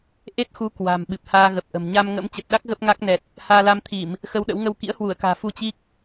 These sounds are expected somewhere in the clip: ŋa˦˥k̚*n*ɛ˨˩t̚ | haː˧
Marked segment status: correct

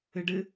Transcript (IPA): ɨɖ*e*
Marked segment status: incorrect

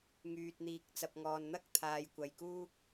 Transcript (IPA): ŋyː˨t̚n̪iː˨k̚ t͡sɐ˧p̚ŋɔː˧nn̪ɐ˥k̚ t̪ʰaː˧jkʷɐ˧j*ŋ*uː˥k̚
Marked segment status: incorrect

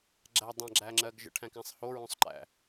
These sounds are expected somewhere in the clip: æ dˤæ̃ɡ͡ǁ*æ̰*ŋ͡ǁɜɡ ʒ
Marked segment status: incorrect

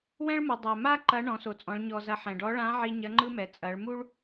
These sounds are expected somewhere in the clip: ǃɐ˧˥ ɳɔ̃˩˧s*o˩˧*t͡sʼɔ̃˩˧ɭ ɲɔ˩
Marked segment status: correct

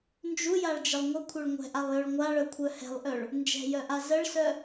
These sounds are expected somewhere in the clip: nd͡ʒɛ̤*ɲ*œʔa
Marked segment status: incorrect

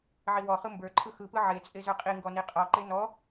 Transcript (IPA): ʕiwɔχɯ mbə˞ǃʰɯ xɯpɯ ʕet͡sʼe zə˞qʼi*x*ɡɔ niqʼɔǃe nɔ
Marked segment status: incorrect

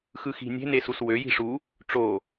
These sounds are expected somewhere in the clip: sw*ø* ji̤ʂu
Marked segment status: correct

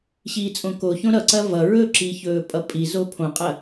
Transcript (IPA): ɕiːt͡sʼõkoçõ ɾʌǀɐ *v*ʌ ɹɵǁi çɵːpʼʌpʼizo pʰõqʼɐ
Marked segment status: correct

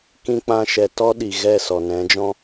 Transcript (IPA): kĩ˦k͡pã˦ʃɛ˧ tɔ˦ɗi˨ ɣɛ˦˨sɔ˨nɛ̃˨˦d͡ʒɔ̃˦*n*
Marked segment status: incorrect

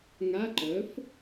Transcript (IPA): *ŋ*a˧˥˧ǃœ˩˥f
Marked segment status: correct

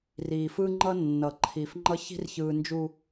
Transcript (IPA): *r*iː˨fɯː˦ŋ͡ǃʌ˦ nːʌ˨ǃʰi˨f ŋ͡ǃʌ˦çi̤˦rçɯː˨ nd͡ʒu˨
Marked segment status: correct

